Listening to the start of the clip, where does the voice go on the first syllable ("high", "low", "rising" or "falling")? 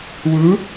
rising